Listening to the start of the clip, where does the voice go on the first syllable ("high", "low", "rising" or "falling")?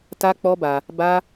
high